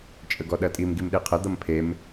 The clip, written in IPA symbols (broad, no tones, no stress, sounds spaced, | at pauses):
t͡ʃʼ ə ɡ ɔ ɗ ɐ tʼ i m ɡ i m ɗ e qʰ ɐ d̪ ʌ m pʰ e m